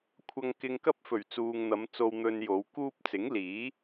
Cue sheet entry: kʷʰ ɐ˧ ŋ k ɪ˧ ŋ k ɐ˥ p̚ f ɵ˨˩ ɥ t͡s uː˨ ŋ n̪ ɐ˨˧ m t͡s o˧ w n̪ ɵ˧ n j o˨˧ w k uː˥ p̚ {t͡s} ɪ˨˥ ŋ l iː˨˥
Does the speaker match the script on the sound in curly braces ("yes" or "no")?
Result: yes